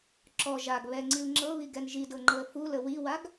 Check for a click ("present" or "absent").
present